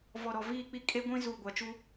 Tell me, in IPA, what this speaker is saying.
v ɔ˨ ɾ ɔ˨ v iː˦˨ k͡p i˦ kʼ e˦ ɡʷ ĩ˦ z uː˨ ɡʷ a˨ t͡ʃ u˦

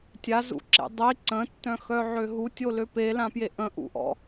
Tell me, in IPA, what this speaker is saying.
tʲ a z ṵ ǁ ḛ dˤ i ǀ ə̃ tː œ̃ x œ ʕ ø ɦ u tʲ o l ø p e l ã p j e ʔ ə̃ ʔ ṵ ʔ ɔ̰

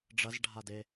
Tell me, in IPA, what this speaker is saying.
ɖ͡ʐ ɐ z ɖʱ a d e

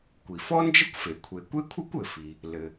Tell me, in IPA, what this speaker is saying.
kʷ i˩ f ɔ˥ n d͡ʒ ə˥ kʷ f e˩ kʷʰ e˩ kʷ e˥ kʷʰ ɯ˥ kʷ ɘ˩ f i˩ | l ɘ˩

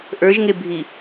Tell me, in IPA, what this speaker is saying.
ʔ ə˞ ʒ ŋ e bʱ i

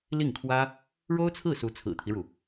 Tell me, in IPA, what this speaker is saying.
l i˥˩ ŋ kʰ w ä˥ | ɻ o˥ ʊ̯ t͡sʰ ɹ̩˥˩ s u˧˥ t͡sʰ ɹ̩˨˩ t̪ʰ i˦ ɻ u˩

